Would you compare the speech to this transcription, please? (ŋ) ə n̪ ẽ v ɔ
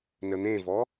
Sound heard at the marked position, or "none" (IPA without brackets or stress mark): n